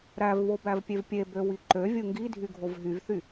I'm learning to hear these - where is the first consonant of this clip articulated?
tongue tip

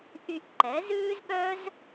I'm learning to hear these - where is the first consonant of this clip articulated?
throat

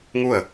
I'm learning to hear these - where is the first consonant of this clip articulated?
velum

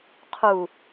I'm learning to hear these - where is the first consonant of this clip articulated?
uvula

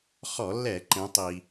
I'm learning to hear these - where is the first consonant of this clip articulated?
uvula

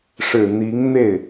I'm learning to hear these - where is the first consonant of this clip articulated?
retroflex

